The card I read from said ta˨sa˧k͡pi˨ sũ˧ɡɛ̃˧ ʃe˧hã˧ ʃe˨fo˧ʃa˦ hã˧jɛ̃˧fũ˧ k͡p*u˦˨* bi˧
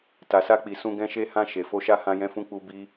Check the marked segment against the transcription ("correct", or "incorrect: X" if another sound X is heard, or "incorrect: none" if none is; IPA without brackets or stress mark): incorrect: u˧